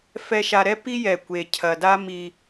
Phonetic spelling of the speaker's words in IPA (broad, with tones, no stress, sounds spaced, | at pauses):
f ɛ˨ ʃ a˨ ɾ ɛ˦ p i˦ j ɛ˨ kʷ e˨ cʰ ɐ˨ d a˦ m i˦